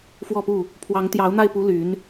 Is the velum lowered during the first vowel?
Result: no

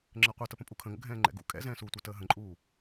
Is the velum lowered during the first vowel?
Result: no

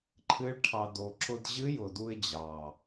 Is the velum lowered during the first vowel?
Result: no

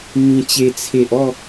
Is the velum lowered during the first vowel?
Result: yes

